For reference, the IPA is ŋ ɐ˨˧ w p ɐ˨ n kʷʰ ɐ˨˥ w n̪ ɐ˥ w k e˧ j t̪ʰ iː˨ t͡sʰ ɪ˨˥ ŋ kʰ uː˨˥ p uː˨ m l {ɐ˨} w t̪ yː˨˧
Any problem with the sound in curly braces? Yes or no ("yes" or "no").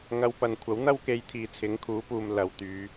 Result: no